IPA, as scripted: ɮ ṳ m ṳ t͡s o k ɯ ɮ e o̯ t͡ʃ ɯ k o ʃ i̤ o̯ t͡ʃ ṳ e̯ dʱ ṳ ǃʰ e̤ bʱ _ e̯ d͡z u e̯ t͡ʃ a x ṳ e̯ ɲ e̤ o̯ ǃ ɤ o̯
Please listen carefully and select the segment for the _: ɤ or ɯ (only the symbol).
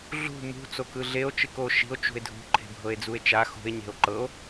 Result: ɤ